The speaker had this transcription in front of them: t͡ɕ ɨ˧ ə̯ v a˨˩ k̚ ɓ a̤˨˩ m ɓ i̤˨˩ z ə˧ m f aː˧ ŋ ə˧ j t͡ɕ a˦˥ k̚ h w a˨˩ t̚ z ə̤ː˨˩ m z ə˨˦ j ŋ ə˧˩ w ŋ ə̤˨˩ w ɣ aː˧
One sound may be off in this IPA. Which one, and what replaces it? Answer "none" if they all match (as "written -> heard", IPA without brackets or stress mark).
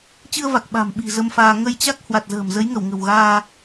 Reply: none